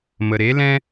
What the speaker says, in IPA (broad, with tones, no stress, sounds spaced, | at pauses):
m ə˨ ɾ e˨˦ l ɛ̃˦